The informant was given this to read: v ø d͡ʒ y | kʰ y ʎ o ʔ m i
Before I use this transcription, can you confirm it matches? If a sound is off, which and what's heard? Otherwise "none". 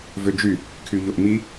none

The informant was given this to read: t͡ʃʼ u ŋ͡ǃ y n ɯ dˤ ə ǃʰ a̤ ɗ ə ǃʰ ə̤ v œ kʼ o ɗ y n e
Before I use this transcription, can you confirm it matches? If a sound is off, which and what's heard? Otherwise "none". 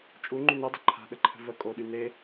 œ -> ə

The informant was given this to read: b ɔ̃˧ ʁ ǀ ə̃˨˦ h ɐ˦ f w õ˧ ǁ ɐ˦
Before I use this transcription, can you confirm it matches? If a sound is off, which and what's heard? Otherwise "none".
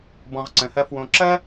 none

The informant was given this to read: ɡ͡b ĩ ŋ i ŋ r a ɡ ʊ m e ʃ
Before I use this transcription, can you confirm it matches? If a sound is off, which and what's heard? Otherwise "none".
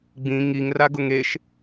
m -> ŋ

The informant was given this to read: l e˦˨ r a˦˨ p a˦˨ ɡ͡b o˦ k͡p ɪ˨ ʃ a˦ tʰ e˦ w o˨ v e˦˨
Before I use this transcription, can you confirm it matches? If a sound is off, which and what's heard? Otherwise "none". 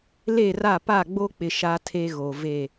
w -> ɣ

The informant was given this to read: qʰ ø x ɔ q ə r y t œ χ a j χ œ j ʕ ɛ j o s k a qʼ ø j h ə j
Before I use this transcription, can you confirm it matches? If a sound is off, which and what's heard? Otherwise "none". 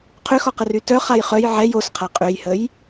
k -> qʰ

